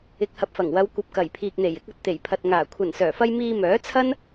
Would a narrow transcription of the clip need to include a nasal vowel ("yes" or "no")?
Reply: no